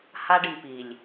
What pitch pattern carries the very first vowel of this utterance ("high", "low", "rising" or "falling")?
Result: high